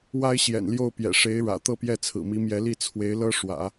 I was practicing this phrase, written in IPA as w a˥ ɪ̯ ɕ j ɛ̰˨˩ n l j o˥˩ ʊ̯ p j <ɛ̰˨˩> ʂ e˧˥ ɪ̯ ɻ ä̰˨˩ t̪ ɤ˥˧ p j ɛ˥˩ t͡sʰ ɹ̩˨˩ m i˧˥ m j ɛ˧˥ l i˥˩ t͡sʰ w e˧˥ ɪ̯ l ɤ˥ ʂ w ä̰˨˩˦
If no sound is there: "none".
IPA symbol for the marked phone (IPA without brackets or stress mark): ɛ̰˨˩